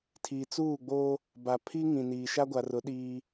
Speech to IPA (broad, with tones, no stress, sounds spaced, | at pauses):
tʰ i˨ t͡s uː˦˨ ɡ͡b oː˦ | b a˨ pʰ i˦ ŋ ĩ˨ n iː˨ ʃ a˦ ɡʷ a˨ r ʊ˨˦ ɗ iː˦